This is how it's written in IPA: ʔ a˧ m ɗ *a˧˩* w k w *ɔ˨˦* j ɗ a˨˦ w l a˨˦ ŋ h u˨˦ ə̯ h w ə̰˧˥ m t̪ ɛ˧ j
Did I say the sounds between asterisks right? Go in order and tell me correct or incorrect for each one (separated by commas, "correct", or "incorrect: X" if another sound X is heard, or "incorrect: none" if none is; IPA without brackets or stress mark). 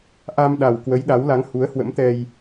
incorrect: a˨˩, incorrect: ə˨˦